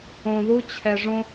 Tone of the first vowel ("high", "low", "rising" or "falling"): low